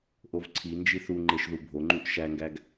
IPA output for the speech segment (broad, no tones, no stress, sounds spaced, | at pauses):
ʔ o v ǀʰ i n d͡ʒ i θ u ŋ͡ǃ e ʃ ð u bʱ o ŋ͡ǃ u ʔ ʃ æ ŋ ɡ æ ɡ